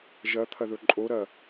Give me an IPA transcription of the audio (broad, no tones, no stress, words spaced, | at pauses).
ʒɐt̪ʰɐðɵ ǃʼoɾɐ